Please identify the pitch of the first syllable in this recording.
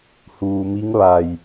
low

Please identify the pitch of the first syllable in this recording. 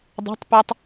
rising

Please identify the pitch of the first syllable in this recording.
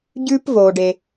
high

